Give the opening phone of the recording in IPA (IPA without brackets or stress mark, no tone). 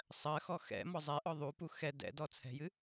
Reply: sˤ